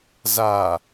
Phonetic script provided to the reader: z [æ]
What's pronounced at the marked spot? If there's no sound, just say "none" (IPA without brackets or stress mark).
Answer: a